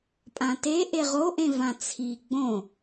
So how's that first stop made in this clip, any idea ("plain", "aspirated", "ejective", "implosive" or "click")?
ejective